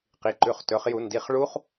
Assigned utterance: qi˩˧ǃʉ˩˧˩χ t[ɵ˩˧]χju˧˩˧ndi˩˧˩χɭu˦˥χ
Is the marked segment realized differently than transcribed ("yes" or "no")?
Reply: no